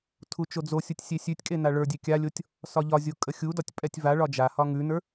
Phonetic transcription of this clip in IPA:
tʰ u t͡ʃ o d͡z o sʲ u tʲ sʲ e sʲ ʉ tʲ kʼ e n a ɭ ə˞ dʲ e kʲ a lʲ o tʲ | s ɒ ʎ ɒ zʲ o kʼ ə xʲ u d ɒ tʲ pʼ ɛ tʲ v a ɭ ɒ d͡ʒ a h ɒ ŋ ʉ n ə˞

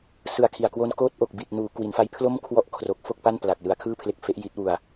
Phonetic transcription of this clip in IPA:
s ɯ˨˩ a̯ kʰ i˨˩ a̯ k w o˦˥ n k oː˦˥ t̚ ʔ o˨˩ k̚ b i˨˩ t̚ n uː˩˦ k w i˩˦ n f a˦˥ j pʰ l o˥˩ m kʰ w ɔ˦˥ ʔ kʰ r o˨˩ k̚ f o˥˩ k̚ p a˥˩ n p l a˨˩ k̚ l ɯ˩˦ a̯ kʰ ɯː˥˩ pʰ l e˦˥ k̚ f e˦˥ ʔ j i˦˥ t̚ w u˨˩ a̯

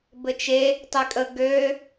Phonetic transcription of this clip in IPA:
b ɘ t͡ʃ e | tˤ ɪ kʼ ə ɡ ø

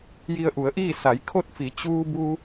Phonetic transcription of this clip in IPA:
j i˧ ə̯ ʔ u˩˧ ə̯ ʔ iː˥˨ s a˩˧ j kʰ o˥˨ t̚ f i˩˧ t͡ɕ uː˧ b u˧

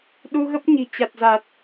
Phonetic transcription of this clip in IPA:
ɗ u˧ ɣ ə˦˥ p̚ ɲ i̤˨˩ t͡ɕ a˨˩ t̚ z a˨˩ t̚

